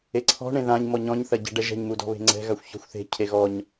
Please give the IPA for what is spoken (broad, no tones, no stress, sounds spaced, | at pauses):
e ǀʰ ɔ̤ ɳ ẽ ð ã ɲ m ɔ ɲ ɔ̃ ɲ θ ɐ ɟ ɛ̤ ɖ ɛ ʒ ɛ̤ ɲ m u d ɔ̤ β e̤ ŋ͡ǀ ɛ̤ ɣ a xʷ ç ɔ̤ xʷ θ e̤ cʰ e ɣ ɔ ɲ